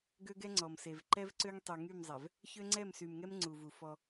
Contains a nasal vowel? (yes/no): no